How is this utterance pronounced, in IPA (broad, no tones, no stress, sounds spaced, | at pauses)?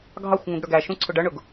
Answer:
ɡʱ ɑ xʷ ŋ ũ ɡ ɽ ə˞ ɡ æ ʃ ũ ǀʰ ʊ ɖ ʌ ɳ ʊ ɡ